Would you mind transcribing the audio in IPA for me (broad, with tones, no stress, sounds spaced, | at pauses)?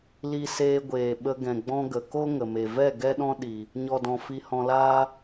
l i˧ s eː˧ ɡʷ eː˨ ɓ ə˧ ɡ ɛ̃˨ ɡ͡b ɔ̃˦ ɡ ə˨ k o˦ ŋ ə˨ m e˨ v ɛ˦˨ ɡ ɛ˦ ɗ ɔ̃˦ ɗ i˨ | ɲ ɔ˨ d ɔ̃˨ f i˧ h ɔ̃˧ l aː˦